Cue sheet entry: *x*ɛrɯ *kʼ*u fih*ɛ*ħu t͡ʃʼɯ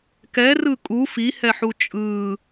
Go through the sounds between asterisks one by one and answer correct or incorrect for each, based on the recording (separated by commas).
incorrect, correct, correct